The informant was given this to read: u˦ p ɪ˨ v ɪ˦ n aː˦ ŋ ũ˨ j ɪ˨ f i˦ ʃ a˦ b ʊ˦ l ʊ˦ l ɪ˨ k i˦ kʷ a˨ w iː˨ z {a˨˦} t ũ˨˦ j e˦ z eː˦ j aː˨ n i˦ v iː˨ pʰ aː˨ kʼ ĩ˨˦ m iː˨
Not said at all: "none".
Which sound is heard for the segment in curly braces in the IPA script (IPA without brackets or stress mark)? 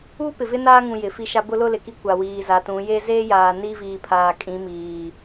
a˨˦